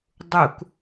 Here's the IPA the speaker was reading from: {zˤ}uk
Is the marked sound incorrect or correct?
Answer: incorrect